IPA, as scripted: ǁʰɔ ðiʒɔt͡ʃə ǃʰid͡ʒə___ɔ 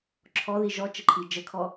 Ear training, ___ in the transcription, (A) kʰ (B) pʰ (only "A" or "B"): A